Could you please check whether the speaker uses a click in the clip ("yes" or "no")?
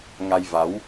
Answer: no